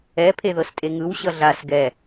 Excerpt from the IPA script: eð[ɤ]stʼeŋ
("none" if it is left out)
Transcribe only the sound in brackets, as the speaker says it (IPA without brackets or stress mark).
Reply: ɤ